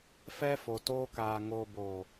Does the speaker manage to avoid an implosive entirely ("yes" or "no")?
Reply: yes